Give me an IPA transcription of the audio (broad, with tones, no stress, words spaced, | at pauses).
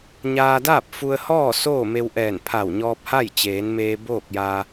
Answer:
ɲaː˧daː˥˨p̚fu˧ə̯hɔː˥˨ soː˥˨me˧wʔɛː˧˩n pʰa˧˩wɲɔː˧p̚ha˥˨j t͡ɕeː˩˧nmeː˧ boː˥˨k̚ja˧